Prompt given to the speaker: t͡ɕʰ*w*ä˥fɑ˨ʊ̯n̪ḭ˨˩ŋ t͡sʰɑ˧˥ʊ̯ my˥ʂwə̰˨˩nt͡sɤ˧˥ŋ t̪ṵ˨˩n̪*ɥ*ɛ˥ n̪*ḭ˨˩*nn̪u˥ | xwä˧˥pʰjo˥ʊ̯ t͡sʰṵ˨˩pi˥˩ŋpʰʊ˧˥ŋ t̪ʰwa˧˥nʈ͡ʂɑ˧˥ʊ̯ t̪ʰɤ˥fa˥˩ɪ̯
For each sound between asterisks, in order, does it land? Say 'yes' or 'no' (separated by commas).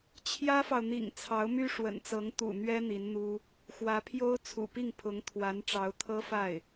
no, yes, no